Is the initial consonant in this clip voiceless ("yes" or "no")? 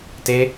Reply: yes